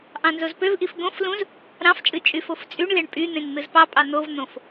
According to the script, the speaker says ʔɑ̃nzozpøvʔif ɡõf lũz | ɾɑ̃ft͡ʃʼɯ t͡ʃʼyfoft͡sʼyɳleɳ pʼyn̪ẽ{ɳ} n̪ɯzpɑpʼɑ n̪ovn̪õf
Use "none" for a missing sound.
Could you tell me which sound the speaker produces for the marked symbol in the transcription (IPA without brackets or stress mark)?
ŋ